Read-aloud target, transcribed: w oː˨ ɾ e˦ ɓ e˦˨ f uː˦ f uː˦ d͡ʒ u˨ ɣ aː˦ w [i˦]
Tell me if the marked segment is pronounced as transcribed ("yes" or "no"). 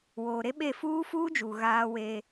no